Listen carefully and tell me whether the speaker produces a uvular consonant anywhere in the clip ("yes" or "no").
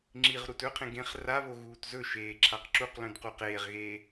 yes